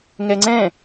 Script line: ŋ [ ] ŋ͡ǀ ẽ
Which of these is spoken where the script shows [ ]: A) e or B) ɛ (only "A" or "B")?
A